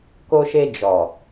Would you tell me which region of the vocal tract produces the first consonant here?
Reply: velum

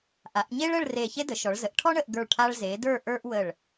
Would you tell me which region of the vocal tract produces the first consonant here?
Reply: throat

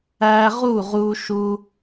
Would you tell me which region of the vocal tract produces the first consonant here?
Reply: uvula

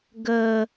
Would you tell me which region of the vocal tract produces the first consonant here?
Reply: velum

